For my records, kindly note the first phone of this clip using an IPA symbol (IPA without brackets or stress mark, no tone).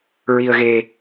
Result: ɹ